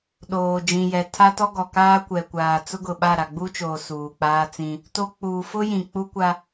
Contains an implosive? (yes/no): yes